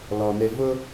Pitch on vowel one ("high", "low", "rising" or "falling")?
low